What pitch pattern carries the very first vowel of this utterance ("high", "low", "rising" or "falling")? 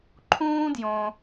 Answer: high